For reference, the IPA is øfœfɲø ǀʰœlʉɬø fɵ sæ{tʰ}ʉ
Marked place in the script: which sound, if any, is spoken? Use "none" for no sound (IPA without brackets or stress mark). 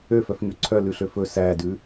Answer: d